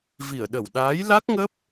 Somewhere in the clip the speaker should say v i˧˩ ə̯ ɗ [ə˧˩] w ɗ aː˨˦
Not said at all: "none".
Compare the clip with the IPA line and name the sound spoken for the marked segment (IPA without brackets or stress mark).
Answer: ə˧˩